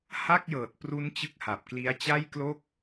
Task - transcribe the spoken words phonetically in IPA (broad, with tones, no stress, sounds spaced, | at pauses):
h a˥˩ k̚ j ɤː˨˩ t̚ p r u˦˥ n t͡ɕ ɯ˥˩ k̚ h a˨˩ p̚ k l i˦˥ a̯ t͡ɕ a˥˩ j k l o˥˩ k̚